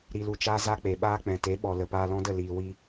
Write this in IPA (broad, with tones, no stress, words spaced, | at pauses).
ɾi˧lu˧t͡ʃaː˦ za˦k͡pe˨ɓaː˦ k͡pɛ̃˨te˨˦ɓɔ˨ lə˨paː˧lɔ̃˦də˦˨ liː˨wi˧